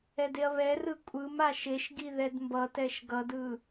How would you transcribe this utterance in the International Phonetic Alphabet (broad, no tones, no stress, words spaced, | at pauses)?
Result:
ɛdeɐ̯βɛrɯ kʷʼɯm aʃeʃɡi ðɛdmbʌtɛʃ ɡʌdɯ